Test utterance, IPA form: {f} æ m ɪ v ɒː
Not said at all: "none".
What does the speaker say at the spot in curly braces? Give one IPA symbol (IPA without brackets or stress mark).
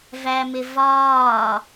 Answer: v